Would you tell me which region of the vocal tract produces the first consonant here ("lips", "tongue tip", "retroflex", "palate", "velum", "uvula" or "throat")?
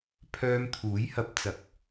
lips